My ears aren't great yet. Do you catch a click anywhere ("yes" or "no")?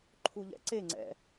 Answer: yes